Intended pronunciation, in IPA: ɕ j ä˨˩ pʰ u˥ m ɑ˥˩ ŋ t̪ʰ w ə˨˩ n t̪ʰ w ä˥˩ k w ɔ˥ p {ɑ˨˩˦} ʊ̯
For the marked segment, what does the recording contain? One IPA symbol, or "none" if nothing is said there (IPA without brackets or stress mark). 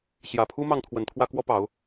ɑ˨˩˦